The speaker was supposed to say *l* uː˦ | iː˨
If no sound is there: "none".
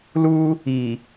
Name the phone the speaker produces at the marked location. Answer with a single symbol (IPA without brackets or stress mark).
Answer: l